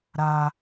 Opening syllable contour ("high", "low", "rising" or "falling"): high